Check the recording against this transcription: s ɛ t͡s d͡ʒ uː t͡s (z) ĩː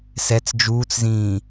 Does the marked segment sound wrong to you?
no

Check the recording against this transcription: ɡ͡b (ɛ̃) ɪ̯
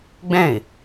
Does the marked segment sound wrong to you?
no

